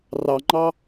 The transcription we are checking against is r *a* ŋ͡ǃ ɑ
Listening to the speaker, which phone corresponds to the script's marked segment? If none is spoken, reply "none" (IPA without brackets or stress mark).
ɑ